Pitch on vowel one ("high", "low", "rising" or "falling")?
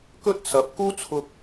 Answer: high